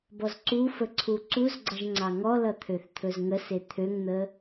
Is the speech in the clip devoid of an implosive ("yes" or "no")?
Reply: yes